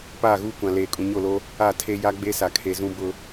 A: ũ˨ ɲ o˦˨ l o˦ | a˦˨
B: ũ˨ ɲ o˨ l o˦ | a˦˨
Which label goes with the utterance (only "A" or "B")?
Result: A